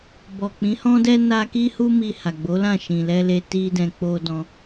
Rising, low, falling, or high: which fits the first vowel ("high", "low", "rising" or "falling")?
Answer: low